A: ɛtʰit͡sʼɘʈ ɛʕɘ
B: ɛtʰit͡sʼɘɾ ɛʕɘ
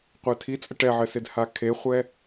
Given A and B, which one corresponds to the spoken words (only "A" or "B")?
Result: A